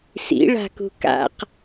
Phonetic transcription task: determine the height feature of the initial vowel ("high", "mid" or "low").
high